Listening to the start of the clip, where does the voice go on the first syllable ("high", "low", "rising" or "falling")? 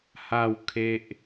falling